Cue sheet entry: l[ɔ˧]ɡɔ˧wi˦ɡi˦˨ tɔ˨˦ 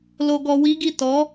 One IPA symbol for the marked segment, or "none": o˧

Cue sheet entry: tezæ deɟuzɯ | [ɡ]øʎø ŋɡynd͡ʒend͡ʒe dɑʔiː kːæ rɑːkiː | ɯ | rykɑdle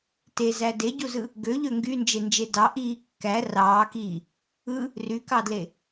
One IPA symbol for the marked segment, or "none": ɡ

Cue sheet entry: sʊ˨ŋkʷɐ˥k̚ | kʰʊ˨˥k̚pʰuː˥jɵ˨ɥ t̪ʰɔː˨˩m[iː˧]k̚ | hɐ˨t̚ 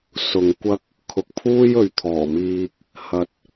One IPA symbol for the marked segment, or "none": iː˧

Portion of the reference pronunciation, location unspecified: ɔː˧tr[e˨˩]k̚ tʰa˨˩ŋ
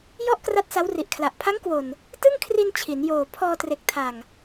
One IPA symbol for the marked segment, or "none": e˨˩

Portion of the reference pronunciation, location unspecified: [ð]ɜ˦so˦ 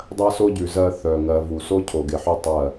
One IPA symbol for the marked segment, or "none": dˤ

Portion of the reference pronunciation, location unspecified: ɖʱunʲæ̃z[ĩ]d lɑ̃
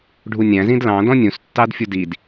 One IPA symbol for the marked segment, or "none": ĩ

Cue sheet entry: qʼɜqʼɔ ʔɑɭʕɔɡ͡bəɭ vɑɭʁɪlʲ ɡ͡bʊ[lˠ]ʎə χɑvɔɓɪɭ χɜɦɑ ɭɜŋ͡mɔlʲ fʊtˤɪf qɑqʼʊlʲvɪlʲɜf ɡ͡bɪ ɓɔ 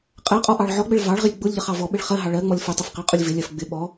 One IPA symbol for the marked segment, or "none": lʲ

